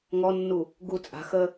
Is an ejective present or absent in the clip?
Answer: present